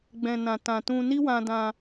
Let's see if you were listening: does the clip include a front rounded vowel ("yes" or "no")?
no